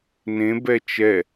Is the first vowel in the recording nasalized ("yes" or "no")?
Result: yes